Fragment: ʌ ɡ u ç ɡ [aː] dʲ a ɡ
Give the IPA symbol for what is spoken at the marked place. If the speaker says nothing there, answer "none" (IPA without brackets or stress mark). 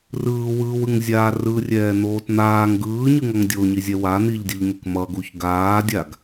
aː